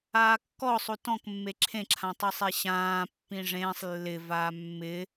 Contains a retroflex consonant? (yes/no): yes